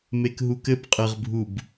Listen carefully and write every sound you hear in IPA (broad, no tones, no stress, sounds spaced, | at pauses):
m e k ɦ u k ɘ b qʼ ɘ ʁ bʱ u b